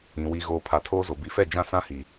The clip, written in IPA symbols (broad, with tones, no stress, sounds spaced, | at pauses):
ĩ˨ w i˨ ɣ oː˨ pʰ a˨ tʰ oː˦ z o˨ b i˨ f ɛ˦˨ d͡ʒ ã˦ s ã˦ h i˨